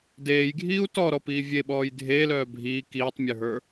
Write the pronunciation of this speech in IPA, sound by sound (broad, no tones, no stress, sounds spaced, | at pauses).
d eː j ɡʱ iː u̯ t ɔ ɾ ɔ p iː vʲ e ɓ ɔː j dʱ eː l œː bʱ iː k iː tˤ mʲ ə˞ ɦ ə˞